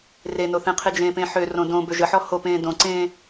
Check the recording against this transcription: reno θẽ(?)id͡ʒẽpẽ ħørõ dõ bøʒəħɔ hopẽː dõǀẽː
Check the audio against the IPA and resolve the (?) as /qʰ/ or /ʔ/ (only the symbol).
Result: qʰ